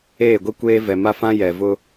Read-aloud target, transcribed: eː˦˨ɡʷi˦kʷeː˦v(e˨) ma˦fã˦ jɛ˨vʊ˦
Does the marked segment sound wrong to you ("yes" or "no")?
yes